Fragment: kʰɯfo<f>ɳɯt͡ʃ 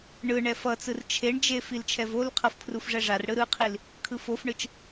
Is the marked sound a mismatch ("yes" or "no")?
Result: no